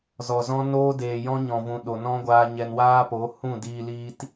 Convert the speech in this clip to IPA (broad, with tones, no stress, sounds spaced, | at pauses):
z ɔ˨ z ɔ̃˦ n oː˦ d eː˨ j ɔ̃˦ ɲ ɔ̃˨ v ũ˨ ɗ o˨ n ɔ̃˦ ɡʷ aː˧ ɲ ɛ˧ n w aː˦ p o˨˦ h ũ˦˨ d iː˧ l iː˦ t